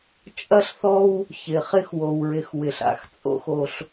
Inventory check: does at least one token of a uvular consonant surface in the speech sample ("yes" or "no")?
yes